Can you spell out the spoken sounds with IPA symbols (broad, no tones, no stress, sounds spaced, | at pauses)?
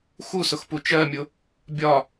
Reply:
x u s ʊ x p u t͡ʃ ɜ mʲ ʊ | bʲ ɒ